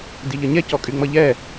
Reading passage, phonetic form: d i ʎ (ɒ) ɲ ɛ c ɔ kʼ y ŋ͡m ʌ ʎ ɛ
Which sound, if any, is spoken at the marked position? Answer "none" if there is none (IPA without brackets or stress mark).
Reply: ʌ